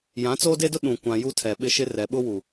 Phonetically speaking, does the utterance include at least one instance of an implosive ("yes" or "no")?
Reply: yes